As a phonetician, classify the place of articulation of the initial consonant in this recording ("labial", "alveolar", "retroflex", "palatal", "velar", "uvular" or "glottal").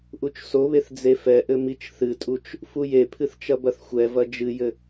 glottal